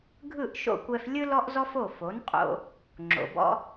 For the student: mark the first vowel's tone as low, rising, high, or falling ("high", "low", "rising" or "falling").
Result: falling